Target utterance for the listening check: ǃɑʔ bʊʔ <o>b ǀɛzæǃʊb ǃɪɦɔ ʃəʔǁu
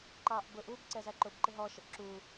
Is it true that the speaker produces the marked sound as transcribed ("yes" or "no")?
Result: no